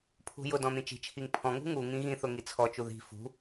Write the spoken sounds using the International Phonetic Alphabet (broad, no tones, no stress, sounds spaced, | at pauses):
pʰ ṳ j ʊ d ɔ̃ n̪ ĩ t͡ʃ i̤ t͡ʃʰ i ŋ pʰ ɔ̃ ŋ ṳ ŋ u ŋ ĩ ɣ ĩ θ ʊ ŋ i t͡sʰ ɔ t͡ʃ u ð i̤ f ṳ